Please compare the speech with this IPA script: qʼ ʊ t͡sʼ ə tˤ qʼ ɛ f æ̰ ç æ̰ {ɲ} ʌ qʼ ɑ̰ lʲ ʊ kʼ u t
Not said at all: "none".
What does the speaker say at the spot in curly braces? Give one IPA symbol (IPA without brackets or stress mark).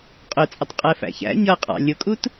ɲ